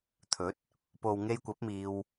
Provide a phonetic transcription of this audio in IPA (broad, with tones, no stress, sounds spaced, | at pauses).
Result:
t̪ʰ ɵ˨˥ t̚ | p o˨ w ŋ e˧ j kʷ ɐ˨˥ p̚ m iː˧ w